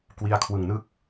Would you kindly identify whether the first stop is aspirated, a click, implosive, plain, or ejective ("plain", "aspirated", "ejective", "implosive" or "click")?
plain